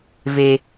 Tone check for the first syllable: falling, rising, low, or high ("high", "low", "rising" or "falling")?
high